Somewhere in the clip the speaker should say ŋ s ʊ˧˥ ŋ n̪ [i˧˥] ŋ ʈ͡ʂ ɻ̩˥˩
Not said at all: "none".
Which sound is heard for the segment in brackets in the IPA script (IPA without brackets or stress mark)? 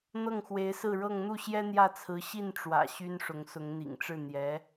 ḭ˨˩